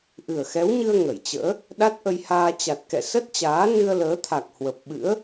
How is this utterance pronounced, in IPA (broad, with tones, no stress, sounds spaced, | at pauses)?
ʔ ɨ˨˩ ə̯ x ɛ˨˦ w ɲ ɨ˧ ə̯ ŋ ə˧˩ j t͡ɕ ə̰ː˧˥ | ɗ a˦˥ t̚ ʔ ə˧ j h aː˧ t͡ɕ a˨˩ t̚ k ɛ̰˧˨ s ə˦˥ t̚ t͡ɕ aː˨˦ n ɨ˧ ə̯ l əː˨˦ t̪ʰ a˨˩ k̚ h w ə˨˩ p̚ ɓ ɨ̰˧˥ ə̯